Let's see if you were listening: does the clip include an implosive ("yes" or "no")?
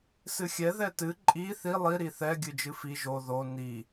no